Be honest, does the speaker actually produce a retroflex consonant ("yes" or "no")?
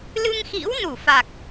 no